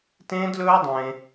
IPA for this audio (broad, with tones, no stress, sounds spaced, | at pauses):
t ẽː˦ d l ɵː˦ dˤ ẽː˦